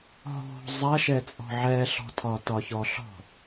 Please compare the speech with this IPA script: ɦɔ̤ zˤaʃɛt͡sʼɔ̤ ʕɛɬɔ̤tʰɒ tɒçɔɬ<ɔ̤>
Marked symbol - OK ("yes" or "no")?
yes